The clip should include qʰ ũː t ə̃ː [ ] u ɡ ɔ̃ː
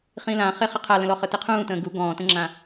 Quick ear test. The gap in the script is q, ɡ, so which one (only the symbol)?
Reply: ɡ